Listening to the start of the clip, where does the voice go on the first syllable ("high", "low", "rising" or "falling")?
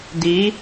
rising